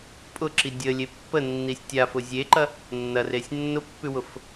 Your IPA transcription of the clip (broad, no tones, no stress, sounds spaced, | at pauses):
pʼ ʊ ǁ i dʲ ə lʲ e pː ə nː i sʲ tʲ a f ʊ zʲ e ǃ ɐ | nː ɐ r e sʲ nː ʊ pː ʉ w ʊ f